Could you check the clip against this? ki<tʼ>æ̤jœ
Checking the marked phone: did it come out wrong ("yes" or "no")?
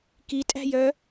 no